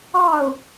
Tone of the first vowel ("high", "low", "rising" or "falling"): falling